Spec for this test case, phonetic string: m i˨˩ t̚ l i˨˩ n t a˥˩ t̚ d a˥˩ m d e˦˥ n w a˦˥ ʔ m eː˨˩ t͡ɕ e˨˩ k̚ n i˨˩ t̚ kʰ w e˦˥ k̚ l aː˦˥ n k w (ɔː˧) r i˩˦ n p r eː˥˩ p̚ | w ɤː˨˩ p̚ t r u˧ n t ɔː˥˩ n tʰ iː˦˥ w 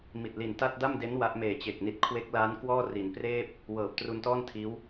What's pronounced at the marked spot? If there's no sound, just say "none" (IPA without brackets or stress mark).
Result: ɔː˥˩